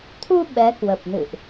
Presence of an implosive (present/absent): present